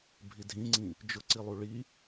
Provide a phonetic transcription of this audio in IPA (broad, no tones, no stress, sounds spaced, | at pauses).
bʱ i dʱ ĩ ŋ͡ǀ ĩ | d͡ʒ ʊ ǀ i lˠ u ɭ i